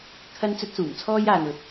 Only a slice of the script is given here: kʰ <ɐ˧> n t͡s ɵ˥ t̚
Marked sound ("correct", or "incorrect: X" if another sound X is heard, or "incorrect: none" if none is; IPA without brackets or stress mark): incorrect: ɐ˥